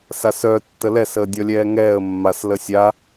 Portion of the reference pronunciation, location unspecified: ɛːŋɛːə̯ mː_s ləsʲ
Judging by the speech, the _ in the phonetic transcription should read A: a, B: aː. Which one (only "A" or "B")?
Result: A